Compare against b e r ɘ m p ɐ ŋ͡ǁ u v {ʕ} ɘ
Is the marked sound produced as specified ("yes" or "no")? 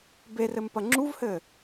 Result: no